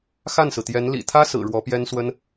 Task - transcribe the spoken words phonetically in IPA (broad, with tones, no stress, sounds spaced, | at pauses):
x a˥˩ n s ɹ̩˩ t̪ j ɛ˧˥ n l ḭ˨˩ t̪ʰ ä˥ s ɹ̩˨˩ ɻ w ɔ˧˥ p j ɛ˥ n s w ə˥ n